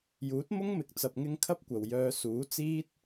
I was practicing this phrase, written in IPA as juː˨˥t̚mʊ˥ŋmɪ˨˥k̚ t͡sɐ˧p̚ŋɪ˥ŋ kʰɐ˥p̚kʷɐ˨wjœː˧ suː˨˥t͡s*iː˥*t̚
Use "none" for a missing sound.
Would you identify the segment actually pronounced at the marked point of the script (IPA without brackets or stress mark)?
iː˥